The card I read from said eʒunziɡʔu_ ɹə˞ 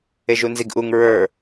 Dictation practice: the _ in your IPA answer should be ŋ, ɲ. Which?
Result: ŋ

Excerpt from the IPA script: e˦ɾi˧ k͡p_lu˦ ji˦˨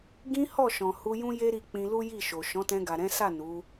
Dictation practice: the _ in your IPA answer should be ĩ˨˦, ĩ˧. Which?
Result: ĩ˧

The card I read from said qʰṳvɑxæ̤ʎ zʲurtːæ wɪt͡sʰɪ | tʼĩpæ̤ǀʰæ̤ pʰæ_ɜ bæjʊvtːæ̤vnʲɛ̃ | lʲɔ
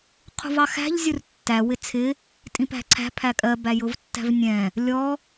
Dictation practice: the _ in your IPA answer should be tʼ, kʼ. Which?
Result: kʼ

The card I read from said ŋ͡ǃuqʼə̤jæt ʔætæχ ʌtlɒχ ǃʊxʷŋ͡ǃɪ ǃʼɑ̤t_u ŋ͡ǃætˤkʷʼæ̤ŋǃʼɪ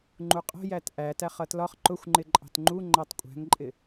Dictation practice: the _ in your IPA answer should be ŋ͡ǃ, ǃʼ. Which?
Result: ŋ͡ǃ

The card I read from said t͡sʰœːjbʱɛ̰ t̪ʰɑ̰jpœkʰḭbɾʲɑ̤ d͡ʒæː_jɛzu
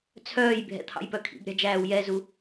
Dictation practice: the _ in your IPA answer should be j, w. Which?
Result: w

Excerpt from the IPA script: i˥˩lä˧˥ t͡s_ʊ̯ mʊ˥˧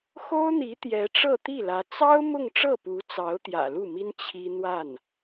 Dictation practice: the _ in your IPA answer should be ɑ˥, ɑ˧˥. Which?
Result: ɑ˥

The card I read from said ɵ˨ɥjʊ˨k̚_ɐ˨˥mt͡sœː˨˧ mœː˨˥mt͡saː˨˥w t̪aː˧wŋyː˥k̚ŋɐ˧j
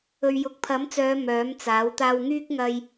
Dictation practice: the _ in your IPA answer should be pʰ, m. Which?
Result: pʰ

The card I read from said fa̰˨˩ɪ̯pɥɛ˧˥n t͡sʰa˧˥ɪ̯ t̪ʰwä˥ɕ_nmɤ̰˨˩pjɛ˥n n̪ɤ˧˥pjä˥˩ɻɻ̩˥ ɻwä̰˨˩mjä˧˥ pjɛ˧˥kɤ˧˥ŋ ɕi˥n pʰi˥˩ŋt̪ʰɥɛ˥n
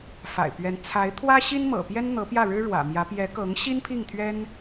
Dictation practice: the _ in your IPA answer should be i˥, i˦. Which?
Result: i˥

